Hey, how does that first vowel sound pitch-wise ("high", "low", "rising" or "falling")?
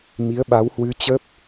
rising